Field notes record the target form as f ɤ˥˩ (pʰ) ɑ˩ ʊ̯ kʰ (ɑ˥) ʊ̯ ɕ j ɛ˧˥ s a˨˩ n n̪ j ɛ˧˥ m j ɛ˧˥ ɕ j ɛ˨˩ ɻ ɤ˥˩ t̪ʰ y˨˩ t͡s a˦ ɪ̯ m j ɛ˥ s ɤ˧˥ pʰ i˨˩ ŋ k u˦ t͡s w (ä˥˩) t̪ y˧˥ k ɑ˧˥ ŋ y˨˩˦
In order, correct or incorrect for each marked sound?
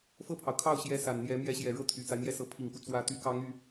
correct, incorrect, incorrect

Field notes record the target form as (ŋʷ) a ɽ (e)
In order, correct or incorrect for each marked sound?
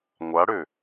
correct, incorrect

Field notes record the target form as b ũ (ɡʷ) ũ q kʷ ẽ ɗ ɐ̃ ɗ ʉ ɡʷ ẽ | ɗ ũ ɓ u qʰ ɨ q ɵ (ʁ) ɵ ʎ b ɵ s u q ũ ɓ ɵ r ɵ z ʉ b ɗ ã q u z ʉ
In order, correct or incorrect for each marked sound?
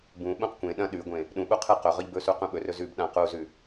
incorrect, correct

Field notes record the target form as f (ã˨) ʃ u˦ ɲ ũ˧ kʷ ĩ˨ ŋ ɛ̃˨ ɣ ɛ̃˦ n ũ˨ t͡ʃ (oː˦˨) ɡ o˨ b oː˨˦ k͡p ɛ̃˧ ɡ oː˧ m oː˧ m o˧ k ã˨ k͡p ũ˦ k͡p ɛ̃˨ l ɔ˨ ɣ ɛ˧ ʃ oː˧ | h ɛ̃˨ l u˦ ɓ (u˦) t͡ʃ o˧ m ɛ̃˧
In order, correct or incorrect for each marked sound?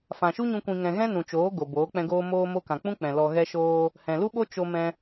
correct, incorrect, incorrect

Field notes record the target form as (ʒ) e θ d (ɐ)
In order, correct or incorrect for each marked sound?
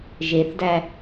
correct, incorrect

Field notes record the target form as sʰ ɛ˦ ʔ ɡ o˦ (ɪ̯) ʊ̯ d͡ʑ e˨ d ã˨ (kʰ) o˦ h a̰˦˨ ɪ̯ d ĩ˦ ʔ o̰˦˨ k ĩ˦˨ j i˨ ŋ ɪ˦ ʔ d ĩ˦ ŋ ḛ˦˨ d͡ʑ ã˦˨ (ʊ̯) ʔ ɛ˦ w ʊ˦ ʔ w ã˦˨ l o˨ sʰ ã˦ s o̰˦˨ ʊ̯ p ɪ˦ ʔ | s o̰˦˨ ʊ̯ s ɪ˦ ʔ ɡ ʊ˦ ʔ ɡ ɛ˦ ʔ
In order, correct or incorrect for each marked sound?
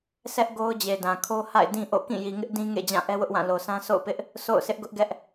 incorrect, correct, incorrect

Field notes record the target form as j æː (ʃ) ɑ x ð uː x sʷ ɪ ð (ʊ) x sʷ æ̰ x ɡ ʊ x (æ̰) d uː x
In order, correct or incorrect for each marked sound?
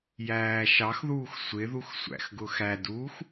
correct, incorrect, incorrect

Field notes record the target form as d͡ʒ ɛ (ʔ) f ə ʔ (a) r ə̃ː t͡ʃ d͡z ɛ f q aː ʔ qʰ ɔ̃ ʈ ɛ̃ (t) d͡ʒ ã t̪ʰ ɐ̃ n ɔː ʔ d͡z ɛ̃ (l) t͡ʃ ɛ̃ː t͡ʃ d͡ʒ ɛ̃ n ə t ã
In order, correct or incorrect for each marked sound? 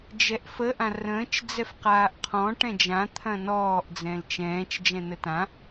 correct, incorrect, incorrect, correct

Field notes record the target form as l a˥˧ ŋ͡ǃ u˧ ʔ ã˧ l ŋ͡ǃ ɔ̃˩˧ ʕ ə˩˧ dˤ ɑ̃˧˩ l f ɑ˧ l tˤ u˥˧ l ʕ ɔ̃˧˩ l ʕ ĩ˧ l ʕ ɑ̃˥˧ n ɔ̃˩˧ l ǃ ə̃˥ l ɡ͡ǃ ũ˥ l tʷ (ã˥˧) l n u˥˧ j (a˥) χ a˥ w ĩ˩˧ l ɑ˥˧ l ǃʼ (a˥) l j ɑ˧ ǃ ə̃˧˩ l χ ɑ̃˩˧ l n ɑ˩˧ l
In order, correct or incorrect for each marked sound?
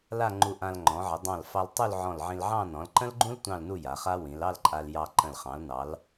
incorrect, incorrect, incorrect

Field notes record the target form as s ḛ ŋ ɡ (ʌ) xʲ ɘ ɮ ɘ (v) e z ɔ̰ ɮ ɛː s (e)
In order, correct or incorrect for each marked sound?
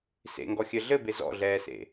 incorrect, incorrect, incorrect

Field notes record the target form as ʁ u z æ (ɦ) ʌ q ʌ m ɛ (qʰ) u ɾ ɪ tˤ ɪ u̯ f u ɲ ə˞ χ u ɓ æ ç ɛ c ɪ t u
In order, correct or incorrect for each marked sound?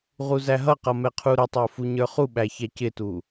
correct, correct

